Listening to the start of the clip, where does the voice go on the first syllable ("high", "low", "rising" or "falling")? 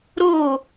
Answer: falling